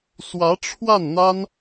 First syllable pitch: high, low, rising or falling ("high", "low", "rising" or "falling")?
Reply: rising